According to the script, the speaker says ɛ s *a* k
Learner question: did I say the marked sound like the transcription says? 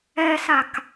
yes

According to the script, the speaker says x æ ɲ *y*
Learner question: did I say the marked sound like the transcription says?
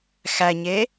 no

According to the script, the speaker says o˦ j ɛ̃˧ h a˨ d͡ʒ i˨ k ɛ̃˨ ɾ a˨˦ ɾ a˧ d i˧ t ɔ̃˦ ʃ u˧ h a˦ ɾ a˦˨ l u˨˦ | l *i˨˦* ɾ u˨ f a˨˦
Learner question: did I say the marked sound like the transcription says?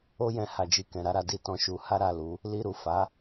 no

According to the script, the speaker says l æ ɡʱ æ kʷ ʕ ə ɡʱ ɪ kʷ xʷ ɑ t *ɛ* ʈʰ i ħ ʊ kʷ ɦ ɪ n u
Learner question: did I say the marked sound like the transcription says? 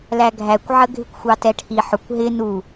yes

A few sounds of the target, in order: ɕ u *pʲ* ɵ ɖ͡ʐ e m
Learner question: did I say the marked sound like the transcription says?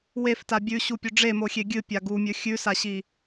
yes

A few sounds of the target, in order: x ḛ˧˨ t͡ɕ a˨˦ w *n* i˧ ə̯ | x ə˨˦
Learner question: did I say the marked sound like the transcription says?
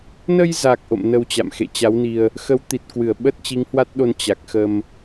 yes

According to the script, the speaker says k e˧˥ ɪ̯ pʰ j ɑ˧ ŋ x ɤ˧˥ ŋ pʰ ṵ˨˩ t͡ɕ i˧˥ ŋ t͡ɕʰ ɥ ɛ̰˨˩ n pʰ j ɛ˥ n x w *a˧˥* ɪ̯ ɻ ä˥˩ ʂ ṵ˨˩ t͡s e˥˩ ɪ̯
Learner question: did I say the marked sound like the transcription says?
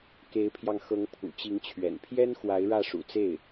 yes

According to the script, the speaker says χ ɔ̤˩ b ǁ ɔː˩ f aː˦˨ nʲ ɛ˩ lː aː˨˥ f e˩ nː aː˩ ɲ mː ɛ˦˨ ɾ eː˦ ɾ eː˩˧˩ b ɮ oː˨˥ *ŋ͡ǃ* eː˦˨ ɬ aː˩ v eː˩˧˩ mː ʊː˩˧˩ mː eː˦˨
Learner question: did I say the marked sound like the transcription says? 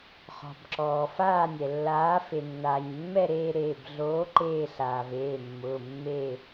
no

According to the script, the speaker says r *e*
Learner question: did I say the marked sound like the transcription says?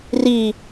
no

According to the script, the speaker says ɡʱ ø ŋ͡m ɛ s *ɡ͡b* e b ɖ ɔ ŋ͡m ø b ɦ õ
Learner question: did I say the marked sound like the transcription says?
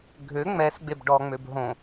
yes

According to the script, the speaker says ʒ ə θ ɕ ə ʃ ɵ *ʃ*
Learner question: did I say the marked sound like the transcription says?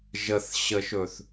no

